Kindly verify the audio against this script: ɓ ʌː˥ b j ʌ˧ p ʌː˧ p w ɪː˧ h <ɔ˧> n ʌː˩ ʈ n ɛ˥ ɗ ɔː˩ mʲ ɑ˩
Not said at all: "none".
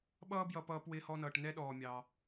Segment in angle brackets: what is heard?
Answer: ɔ˧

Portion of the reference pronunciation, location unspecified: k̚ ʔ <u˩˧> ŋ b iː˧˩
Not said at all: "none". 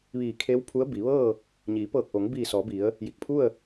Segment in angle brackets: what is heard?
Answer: o˩˧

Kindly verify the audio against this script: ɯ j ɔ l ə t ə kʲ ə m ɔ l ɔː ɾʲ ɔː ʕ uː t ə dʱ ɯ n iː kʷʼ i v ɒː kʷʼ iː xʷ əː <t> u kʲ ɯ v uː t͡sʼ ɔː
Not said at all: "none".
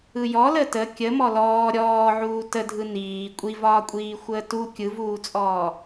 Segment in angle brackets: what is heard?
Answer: t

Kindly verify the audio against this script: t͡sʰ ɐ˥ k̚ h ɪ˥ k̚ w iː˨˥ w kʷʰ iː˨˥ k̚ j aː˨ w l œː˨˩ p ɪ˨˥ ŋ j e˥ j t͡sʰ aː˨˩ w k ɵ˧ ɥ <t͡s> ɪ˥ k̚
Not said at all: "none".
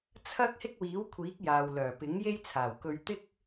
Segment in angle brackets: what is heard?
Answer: t̪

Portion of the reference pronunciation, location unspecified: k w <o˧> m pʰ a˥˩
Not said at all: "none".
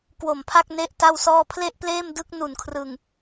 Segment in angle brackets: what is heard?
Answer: o˨˩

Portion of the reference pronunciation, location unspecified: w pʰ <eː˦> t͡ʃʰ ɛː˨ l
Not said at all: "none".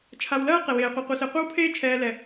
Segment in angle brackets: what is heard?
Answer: eː˦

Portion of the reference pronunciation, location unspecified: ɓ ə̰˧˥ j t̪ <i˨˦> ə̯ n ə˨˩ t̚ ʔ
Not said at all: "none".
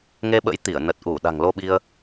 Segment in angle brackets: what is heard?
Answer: i˧˩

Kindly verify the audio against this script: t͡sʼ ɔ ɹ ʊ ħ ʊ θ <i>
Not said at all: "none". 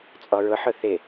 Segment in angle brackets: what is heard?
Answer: ɪ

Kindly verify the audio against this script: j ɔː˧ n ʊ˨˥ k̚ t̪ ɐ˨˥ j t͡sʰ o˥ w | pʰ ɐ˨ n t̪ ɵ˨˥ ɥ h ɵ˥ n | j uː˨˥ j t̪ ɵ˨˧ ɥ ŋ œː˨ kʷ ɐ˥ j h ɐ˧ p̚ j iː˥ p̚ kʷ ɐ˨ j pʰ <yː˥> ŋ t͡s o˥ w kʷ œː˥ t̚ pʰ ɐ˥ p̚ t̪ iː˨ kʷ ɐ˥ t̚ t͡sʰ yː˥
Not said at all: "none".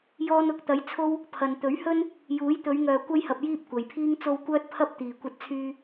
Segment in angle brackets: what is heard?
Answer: iː˥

